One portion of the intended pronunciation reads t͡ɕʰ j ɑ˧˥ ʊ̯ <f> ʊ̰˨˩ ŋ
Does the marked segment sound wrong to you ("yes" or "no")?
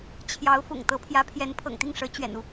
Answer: no